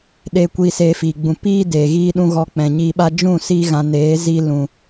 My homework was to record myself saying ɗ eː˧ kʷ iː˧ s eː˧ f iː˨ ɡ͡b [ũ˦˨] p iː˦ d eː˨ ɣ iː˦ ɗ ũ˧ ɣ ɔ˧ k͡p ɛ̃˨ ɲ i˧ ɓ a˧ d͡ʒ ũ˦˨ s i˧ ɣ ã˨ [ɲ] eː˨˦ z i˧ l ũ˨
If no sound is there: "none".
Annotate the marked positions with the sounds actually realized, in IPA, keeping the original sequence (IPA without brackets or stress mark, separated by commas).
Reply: ũ˧, n